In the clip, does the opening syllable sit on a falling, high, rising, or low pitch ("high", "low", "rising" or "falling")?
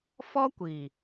high